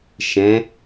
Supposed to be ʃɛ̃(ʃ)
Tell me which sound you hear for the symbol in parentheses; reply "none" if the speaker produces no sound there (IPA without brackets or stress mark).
none